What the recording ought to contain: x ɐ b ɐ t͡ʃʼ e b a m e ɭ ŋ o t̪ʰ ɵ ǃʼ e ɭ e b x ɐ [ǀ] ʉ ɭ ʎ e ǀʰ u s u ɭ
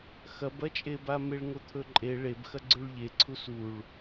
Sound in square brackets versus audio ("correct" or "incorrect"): incorrect